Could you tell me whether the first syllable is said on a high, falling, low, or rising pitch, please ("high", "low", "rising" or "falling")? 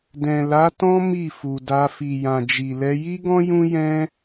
low